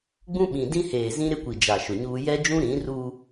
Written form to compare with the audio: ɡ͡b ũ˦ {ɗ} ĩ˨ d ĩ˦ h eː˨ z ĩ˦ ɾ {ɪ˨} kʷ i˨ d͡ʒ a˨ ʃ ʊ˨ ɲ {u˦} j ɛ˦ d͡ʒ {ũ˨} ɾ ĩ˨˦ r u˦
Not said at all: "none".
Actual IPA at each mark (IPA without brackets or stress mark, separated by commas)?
ɓ, ɪ˦, uː˦, ũ˦